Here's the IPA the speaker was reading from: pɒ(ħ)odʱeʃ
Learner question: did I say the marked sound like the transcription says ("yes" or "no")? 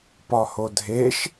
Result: no